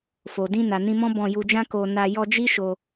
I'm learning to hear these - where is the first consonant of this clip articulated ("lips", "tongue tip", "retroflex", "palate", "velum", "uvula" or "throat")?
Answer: lips